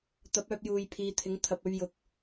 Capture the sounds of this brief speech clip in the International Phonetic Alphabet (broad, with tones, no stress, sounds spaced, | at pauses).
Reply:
t̪ ɐ˨˥ p̚ œː˧ p̚ j uː˨ j pʰ iː˨˧ t̪ʰ ɪ˨˥ ŋ t̪ʰ ɐ˨ p̚ ɵ˧ ɥ j ʊ˨ k̚